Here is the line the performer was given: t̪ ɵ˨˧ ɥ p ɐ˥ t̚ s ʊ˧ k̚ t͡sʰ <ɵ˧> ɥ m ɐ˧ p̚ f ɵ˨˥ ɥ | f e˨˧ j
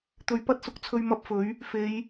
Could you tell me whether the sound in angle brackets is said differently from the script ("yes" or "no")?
no